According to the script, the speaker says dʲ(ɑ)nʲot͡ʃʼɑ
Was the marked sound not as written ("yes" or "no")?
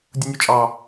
yes